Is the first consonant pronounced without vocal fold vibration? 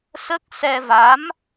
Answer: yes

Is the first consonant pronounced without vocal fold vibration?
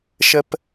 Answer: yes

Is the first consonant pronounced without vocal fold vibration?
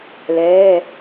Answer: no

